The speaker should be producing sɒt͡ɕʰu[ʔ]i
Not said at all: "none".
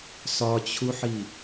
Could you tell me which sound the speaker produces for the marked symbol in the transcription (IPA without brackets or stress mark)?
ħ